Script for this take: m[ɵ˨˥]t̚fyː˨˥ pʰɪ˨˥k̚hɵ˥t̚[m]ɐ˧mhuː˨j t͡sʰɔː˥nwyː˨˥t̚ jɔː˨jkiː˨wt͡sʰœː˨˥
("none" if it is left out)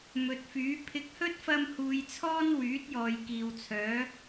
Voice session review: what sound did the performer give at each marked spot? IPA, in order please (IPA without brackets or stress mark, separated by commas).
ɵ˨˥, f